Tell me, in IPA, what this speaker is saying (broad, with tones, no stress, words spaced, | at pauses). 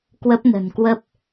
kwə˦˥p̚nə̤˨˩nkwə˦˥p̚